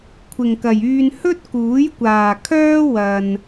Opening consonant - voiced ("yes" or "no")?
no